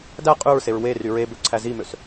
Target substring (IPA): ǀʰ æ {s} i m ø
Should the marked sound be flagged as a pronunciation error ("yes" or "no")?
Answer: yes